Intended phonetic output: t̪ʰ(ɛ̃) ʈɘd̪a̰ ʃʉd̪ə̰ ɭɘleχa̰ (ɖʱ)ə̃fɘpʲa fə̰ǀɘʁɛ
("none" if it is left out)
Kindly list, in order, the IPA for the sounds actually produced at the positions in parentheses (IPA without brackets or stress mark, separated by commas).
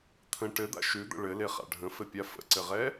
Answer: ə̃, ɖʱ